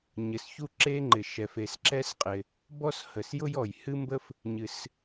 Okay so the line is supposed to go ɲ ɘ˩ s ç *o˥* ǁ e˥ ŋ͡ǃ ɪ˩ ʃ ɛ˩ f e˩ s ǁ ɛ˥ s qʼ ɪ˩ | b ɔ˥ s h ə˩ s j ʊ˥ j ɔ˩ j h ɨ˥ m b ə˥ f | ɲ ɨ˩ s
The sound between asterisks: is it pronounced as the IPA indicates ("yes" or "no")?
no